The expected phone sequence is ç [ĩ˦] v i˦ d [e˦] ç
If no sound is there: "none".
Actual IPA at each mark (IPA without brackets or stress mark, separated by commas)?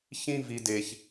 ĩ˦, e˦